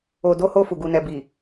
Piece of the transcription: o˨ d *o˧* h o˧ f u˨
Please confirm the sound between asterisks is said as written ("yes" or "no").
yes